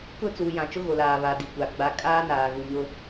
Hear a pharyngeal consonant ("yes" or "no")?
no